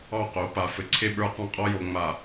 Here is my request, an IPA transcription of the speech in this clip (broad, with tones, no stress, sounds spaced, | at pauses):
ɑ˦˨ q o˨˦ p a˨ f ɘ˨ ǀʰ e˦ ɓ ə˞˦ q ɑ̃˦ qʼ ɔ˦ j o˨ ŋ͡m a˨